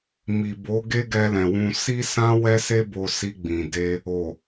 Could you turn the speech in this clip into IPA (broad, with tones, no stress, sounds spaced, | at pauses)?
m i˨ b o˨˦ ɡ e˦ ɡ ɛ˧ l ɛ̃˨ w ũ˧ s i˦ s ã˦ w ɛ˦ s e˦ b o˧ s i˧ ɡ͡b ĩ˨ d e˧ | o˨